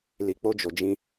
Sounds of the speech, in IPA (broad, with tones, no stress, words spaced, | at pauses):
li˨k͡po˧d͡ʒo˨d͡ʒĩ˧